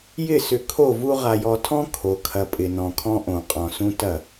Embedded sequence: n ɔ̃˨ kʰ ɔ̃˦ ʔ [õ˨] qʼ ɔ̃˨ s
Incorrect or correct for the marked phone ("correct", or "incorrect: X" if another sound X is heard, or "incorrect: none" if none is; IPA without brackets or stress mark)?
correct